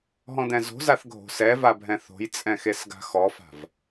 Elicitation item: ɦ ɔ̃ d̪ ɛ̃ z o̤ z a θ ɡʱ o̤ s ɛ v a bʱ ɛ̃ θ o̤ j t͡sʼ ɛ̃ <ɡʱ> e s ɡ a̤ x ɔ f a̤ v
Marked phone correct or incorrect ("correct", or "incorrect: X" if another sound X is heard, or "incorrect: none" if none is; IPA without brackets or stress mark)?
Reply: incorrect: x